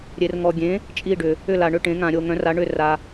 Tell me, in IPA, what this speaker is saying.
ɾʲ e˨ r ŋ ɔ˨ ɡʲ ẽ˨˥ | t͡ʃʼ i˥˨ ɖ ʏ˨ | ʏ˥˨ l a˨ ɳ ʏ˥˨ ʈ ẽ˨˥ ŋ ã˨ ɾʲ o˨ ŋ œ̃˨˥ r a˨˥ ɳ ʏ˥˨ r a˨

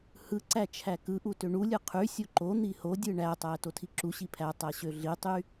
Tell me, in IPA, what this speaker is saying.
h ɯ ǀ æ t͡ʃʰ æ k ɯ ʔ u t ø ɳ u lʲ ɯ qʰ y sʲ o ǃ o n̪ i h o dʲ ɯ ɳ æ tˤ æ t o tʰ i ǁ u ɕ i pʰ æ tˤ æ ɕ ø ɮ i tˤ y

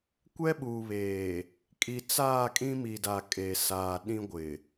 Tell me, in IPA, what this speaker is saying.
kʷ ɛ˦ ɓ uː˨ β eː˨ | kʼ i˨ t͡s aː˦˨ kʼ ĩ˦ m i˨ d a˨ kʼ e˨ s aː˨ ɗ ĩ˦ ɡʷ ɪ˨

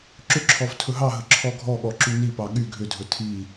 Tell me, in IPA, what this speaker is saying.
ǁ ʏ ǁʰ ɔ v tʰ ɵ ɦ ɑ ɦ ə ǁʰ ɔ ɡʱ ɔ ɠ ɔ ǁ y n i p ɑ ɠ y ɡʱ ʏ dʱ ɵ tʰ i

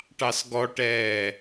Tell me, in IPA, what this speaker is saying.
ʈ ɑ s ɡ ɔ ʈ ɛː

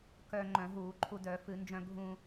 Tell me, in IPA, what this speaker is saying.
k œ˧ ŋ͡ǃ œ̃˧˩˧ ɦ uː˧˩˧ ǃʰ u˧ d œ˧˩˧ f ɨ˧˩˧ n d͡ʒ œ̃˧ ɡʱ ũ˧

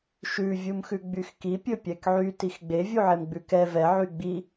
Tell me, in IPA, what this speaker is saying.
ʃ ʉ vʲ u m x ʉ ɡ͡b y x k i pʲ ɵ pʲ ɛ k ʕ y t i x ɡ͡b e vʲ u ʕ e m ɡ͡b ʉ k ɛ v ɛ ʕ y ɡ͡b i

